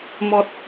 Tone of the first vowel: high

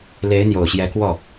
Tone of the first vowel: rising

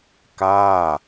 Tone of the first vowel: falling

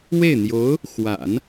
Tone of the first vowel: falling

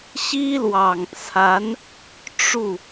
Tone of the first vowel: high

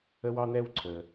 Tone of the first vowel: high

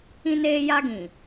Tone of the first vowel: high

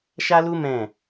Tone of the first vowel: high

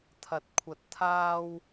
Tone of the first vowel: rising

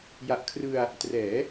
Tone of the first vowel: low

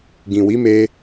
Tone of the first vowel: low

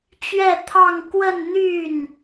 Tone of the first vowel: falling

